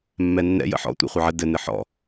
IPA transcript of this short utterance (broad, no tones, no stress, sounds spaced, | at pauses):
mː ɛ nː ɛ̰ j ə̰ ħ ɔ̰ tʷ ɛ̰ χʷ ɘ ʕ ə d ɘ n ɘ ħ ɔ̰